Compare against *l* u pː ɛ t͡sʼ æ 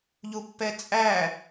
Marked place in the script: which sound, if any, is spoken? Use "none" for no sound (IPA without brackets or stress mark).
ʎ